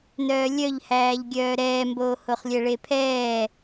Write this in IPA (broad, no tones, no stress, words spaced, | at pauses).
nœːlʲœʎhæːʎɡʲœː ɾɛːmboːhoχlʲɛ ɭepʰɛː